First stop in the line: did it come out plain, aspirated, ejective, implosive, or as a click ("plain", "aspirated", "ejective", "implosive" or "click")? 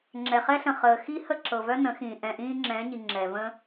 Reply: click